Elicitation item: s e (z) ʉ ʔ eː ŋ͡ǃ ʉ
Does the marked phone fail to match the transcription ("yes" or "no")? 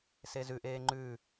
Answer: no